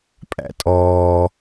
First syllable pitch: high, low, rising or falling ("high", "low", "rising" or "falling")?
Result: high